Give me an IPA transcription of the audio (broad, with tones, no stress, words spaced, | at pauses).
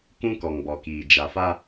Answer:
kũ˦kɔ˨ŋbɔ˨kiː˨ d͡ʒa˨fa˦